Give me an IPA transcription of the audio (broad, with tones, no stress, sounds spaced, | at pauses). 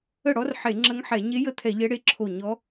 ə˥˩ ɽ ɔ˧˥ r ħ e˧˩˧ ŋ͡ǁ ə˧˥ ŋ ħ ɛ˧˩˧ ɲ e˧˥ j ə˥˩ t̪ʰ ɛ˧˩˧ ʎ ɛ˧˥ ɽ e˧˥ ǁʰ o˧˩ ɲ ɔ˧˥